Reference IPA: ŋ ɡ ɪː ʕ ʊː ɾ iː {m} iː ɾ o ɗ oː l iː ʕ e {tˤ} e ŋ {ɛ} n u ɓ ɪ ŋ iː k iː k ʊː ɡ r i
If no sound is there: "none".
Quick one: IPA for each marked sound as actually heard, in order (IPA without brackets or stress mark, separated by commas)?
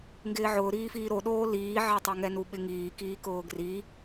f, tˤ, ɛ